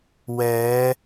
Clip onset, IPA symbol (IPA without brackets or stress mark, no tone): w